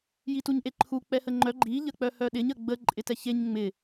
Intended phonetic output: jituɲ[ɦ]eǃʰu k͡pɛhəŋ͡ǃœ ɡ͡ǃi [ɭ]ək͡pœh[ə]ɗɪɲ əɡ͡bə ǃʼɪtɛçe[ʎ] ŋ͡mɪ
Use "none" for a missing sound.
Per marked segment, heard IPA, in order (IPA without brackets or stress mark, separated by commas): ʔ, ʎ, œ, ɲ